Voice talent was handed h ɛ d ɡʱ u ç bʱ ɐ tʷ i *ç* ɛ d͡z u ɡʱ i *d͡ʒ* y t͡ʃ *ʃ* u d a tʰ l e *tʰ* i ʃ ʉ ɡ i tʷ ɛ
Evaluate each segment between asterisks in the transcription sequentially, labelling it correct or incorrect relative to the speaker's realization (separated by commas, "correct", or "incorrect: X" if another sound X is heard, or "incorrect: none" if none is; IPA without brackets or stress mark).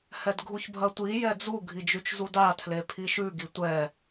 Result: incorrect: j, correct, incorrect: z, incorrect: pʰ